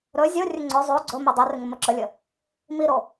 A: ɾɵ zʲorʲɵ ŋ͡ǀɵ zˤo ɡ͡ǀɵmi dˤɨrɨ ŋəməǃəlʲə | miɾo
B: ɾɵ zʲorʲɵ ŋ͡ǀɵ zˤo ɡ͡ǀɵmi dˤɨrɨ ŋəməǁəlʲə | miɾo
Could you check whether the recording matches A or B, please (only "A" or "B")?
B